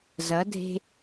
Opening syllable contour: rising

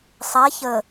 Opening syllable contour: rising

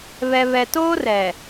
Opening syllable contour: low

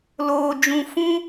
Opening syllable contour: low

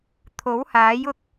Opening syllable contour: rising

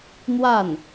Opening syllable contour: falling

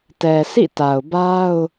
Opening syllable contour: low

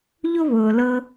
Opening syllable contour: high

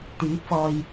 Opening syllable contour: rising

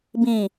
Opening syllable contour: low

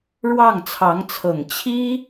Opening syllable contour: falling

